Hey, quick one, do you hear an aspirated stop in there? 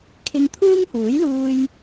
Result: yes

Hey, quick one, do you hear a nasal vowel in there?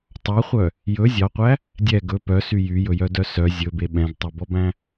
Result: yes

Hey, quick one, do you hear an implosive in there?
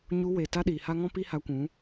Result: yes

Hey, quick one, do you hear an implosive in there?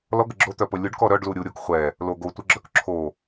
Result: no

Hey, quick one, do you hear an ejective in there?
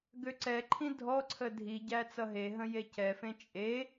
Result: yes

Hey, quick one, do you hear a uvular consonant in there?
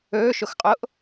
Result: yes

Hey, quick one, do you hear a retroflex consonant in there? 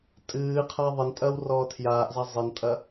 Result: no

